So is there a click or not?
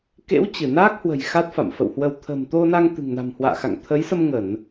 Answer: no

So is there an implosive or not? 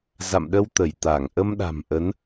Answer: yes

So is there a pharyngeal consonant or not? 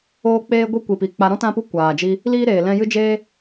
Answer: no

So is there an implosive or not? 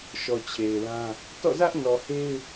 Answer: no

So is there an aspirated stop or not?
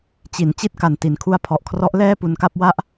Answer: yes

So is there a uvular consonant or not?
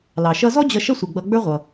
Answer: yes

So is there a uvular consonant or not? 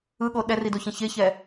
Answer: no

